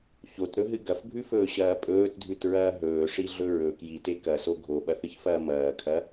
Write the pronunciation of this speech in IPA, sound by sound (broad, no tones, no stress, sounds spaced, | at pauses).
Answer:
ç o t ɾ ɵ ɦ ɨ ɡ ɐ f bʱ ʉ f ɵː ɕ ɐː pʼ ɵː t dʱ ʉ t ɹ ɐː ɦ ɵː ʂ i ɮ ɵ ɹ ɵ k j i t e k ɐ s o ɡʱ o ɓ ɐ θ ɨ ç f ɐː m ɐː kʰ ɐ